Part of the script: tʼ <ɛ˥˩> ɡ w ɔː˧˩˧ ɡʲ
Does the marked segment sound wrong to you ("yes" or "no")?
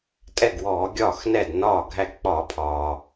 no